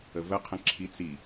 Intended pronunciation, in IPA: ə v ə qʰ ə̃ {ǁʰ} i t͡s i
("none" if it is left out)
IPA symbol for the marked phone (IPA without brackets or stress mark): ǁʰ